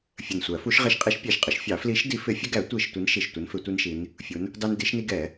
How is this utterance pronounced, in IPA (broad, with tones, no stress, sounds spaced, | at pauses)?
fʲ ə˨˩ n sʷ æ˨˩˦ f u˨˦ ʃ ʁ ɪ˨˦ ʃ qʼ i˨˦ ʃ pʲ æ˨˩ ʃ qʼ ɪ˨˦ ʃ fʲ ɑ˨˩˦ f l i˨˦ ʃ d i˨˦ f ɪ˨˦ fʲ ə˦ ɡ æ˨˩˦ tʷ i˨˩ ʃ tʷ i˨˦ n ʃ i˨˩ ʃ tʷ ə˨˦ n f ɪ˨˩˦ tʷ i˦ n ʃ i˨˦ n | fʲ u˨˦ n | d ɑ˦ n d i˨˦ ʃ n i˦ ɡ ɛ˨˩˦